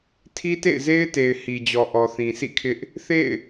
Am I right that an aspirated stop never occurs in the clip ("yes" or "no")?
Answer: no